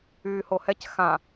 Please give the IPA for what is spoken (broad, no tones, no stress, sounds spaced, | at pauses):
yː h o h ɛ c x ã